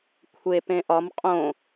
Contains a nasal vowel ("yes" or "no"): yes